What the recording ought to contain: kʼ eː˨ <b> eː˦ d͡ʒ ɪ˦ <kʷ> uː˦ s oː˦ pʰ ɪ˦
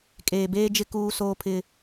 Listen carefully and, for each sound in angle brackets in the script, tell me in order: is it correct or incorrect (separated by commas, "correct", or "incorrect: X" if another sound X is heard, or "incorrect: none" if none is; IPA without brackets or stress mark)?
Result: correct, incorrect: k